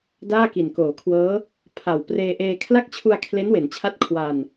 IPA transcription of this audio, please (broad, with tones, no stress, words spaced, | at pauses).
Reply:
daː˥˩ki˨˩nkoː˩˦kʰwɤː˦˥ | pʰa˨˩w preː˧ʔeː˧ kʰla˦˥k̚t͡ɕʰu˧a̯ kʰle˦˥nwe˩˦nt͡ɕʰa˦˥t̚ kʰwa˧n